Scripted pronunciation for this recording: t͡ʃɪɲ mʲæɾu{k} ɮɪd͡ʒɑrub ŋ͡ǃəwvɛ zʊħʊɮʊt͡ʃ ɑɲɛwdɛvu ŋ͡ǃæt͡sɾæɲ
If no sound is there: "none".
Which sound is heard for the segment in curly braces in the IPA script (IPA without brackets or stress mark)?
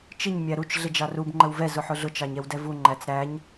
t͡ʃ